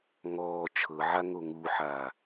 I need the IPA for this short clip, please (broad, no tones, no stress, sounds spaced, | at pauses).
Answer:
ŋ ɔː t͡ʃʰ ɤ ʕ a ŋ o ŋ u ħ a